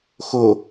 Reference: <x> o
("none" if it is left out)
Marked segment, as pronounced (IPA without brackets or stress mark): x